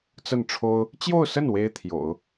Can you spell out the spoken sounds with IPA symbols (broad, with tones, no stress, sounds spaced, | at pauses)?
t͡s ə˥˩ n ʈ͡ʂʰ o˥ ʊ̯ | t͡ɕ j o˥˧ ʊ̯ s ə˥˩ n w e˥ ɪ̯ t̪ʰ j o̰˨˩˦ ʊ̯